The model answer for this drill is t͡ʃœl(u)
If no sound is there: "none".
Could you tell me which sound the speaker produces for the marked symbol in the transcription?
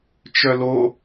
o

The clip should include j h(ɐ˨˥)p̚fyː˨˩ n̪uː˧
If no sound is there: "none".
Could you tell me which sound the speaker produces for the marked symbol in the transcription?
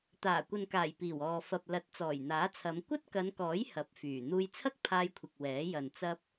ɐ˨˥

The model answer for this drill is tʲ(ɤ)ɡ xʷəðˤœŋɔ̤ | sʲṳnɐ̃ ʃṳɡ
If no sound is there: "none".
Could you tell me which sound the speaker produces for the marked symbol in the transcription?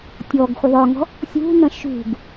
ɔ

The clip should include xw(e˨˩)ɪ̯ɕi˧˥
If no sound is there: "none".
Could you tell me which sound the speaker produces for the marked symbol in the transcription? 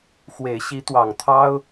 e˨˩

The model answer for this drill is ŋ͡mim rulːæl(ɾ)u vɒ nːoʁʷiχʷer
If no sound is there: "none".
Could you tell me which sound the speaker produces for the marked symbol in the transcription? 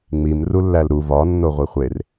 ɾ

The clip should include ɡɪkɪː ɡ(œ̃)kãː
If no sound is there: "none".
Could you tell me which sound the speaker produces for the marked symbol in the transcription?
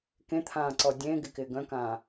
œ̃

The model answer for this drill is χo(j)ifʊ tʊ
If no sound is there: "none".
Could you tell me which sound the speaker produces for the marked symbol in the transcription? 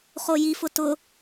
j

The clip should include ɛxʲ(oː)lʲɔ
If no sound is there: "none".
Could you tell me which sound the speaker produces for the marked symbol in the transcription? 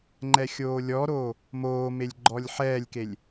oː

